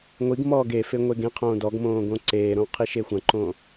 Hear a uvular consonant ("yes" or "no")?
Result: yes